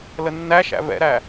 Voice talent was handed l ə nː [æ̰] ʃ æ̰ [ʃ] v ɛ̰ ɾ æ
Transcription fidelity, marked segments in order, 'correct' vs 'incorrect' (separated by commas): incorrect, incorrect